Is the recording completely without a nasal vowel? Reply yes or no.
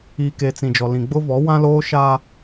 no